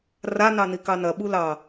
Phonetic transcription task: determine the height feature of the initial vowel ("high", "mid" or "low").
low